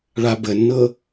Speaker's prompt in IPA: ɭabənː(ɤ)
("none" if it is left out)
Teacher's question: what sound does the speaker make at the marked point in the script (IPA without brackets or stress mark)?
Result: ɤ